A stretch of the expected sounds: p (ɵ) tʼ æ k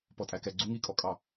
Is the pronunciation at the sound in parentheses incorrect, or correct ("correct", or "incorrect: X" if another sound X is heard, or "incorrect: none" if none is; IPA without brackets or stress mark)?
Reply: incorrect: ɔ